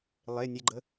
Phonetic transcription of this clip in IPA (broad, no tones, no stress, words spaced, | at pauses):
lˠe nʲeɡ͡ǃə